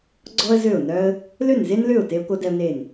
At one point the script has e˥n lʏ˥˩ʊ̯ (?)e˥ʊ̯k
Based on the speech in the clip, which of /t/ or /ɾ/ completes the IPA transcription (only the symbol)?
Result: t